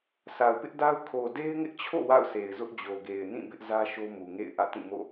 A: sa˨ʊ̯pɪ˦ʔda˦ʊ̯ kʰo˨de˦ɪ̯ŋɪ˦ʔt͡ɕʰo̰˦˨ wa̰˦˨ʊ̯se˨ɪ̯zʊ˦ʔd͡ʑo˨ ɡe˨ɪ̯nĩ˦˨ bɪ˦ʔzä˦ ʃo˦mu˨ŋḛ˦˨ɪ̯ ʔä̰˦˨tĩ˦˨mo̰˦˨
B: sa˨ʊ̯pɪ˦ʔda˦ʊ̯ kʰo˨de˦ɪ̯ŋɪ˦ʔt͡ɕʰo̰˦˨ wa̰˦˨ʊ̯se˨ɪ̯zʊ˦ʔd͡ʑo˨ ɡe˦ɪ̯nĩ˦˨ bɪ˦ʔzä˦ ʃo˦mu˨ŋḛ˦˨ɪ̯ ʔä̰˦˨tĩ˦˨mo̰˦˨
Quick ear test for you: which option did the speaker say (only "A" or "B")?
A